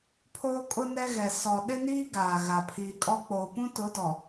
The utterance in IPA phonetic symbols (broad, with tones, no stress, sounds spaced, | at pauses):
pʰ oː˦ kʼ ʊ˦ n ɛ˦ ɣ ɛ˨ s ɔ˨ ɗ ɪ˦ n iː˦ ɡ aː˨ ɣ a˨ pʰ iː˨ kʼ ɔ˦ k͡p oː˨ p ũ˦ t ʊ˨˦ d ɔ˨